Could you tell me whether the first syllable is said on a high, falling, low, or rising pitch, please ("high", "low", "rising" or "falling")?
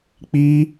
high